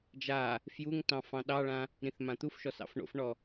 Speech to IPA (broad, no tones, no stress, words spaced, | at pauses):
d͡ʒa | fjuŋ tɑ̃fɑ̃ɗɑɭã | ɾĩθmãt̪ufʃɔs ɑ̰fɳo̰fɳɔ